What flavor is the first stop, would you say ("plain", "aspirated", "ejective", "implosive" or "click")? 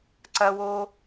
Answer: click